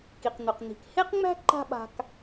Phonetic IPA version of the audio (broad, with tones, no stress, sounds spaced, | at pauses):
k i˩ q n̪ ɵ˩ q n̪ i̤˩ k h e˥ q ŋ͡m æ̤˥ ǃ a̤˥ ɓ a̤˧ k